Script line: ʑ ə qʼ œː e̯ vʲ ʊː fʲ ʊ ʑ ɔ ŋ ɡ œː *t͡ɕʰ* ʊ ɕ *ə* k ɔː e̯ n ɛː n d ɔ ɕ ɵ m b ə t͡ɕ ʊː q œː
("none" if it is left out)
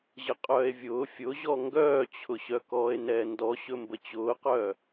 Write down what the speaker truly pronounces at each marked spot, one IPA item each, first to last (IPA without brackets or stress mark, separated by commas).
t͡ɕʰ, œ